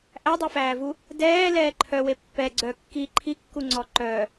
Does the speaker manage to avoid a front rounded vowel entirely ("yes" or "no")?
no